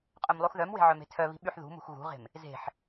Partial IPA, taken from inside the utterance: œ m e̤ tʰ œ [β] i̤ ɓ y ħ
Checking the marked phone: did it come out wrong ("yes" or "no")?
no